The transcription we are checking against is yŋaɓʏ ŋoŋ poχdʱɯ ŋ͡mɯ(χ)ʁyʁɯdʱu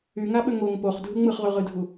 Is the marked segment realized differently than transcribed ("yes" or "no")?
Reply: no